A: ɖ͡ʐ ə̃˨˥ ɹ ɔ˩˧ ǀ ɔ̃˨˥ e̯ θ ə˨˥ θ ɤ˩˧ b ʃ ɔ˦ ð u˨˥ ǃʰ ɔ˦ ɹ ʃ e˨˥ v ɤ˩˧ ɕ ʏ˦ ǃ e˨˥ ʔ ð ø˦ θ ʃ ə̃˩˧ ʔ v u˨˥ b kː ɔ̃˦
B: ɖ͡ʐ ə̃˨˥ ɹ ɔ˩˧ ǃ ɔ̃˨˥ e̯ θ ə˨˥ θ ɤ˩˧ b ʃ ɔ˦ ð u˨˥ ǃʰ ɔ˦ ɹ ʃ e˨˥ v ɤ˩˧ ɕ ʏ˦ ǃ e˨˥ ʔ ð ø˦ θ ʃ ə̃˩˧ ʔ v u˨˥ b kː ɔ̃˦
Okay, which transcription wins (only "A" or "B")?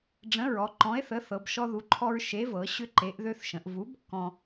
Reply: B